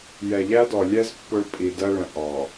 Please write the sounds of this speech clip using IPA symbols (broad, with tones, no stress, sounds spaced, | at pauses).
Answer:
j ɛ˨ ʎ æ˦ d ɔ˨ lʲ ɛ˦ z pː ʊ˦ ɭ pʼ i˨ d ɜ˦ ɭ ə̃˨ ʔ ɑ˨